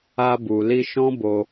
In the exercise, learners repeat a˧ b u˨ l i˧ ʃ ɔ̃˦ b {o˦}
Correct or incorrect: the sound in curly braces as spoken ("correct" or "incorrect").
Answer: incorrect